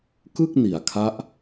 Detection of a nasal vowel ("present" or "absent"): absent